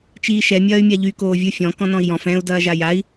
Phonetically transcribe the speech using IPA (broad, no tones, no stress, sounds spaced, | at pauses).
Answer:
t͡ʃ iː ʃ ɛ mʲ ɐː y̯ mʲ a ʎ y k oː vʲ ɯ fʲ ɔ̃ k ɔ̃ n ɔ̃ i̯ j ɔ̃ f ɛ̃ u̯ d ɐː ʒ a j a i̯